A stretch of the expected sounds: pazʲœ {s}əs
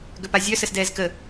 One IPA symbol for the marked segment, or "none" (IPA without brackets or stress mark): s